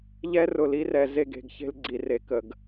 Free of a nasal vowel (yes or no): yes